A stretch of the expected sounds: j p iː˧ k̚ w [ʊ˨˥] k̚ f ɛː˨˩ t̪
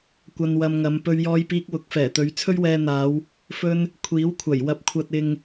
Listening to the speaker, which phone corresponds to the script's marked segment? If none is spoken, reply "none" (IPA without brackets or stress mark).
ʊ˨˥